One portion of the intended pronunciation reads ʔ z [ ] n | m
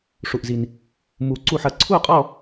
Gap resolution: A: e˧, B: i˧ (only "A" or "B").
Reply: B